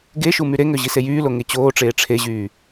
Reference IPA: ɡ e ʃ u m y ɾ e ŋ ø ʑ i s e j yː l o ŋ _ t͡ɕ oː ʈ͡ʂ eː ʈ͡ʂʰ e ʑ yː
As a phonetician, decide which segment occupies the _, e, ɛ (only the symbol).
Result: e